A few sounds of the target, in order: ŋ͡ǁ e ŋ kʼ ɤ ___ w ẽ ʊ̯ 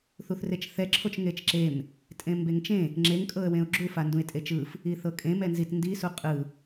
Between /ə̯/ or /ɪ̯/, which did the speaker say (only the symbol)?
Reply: ə̯